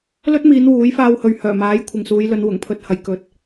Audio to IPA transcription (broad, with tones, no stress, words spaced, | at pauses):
lɵ˥t̚miː˨˧n wuː˨˥j faː˧whɵ˨ɥhœː˨˩maː˨˥j kʷʰɪ˨ŋsuː˨˧jlɵ˨˧n wʊ˨˩ŋpʰɵ˧t̚hɐ˨˧j kɵ˨t̚